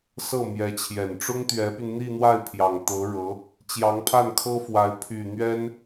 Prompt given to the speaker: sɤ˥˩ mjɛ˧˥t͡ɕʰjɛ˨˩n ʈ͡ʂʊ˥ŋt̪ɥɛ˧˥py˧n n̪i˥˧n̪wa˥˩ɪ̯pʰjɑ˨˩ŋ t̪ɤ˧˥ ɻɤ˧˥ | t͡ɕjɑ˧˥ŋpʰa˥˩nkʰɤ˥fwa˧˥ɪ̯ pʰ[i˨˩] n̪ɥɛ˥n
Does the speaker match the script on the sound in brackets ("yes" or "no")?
no